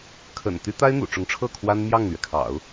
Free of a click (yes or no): yes